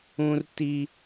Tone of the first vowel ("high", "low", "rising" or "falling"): high